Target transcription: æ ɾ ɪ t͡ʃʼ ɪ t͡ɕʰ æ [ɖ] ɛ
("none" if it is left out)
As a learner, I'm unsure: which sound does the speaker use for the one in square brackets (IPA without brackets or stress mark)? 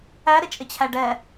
ɖ